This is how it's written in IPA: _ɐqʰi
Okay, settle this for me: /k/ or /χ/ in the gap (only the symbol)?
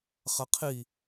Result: χ